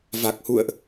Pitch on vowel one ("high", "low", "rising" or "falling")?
low